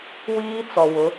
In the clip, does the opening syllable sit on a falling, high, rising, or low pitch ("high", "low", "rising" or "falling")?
high